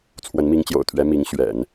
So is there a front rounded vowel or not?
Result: no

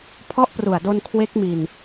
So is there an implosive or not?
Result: no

